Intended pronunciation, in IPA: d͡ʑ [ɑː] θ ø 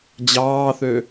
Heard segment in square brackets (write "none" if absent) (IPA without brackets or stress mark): ɑː